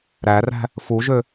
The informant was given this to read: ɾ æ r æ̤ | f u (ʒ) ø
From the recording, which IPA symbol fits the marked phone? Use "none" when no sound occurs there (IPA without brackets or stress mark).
ʒ